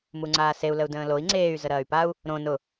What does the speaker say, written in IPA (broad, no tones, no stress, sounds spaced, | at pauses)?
m u ŋ͡ǀ aː s e u̯ l ə u̯ d ə̃ː l o i̯ ŋ͡ǀ eː y̯ z ə ɾ ɐː y̯ p a u̯ | ɾ õ n ʊ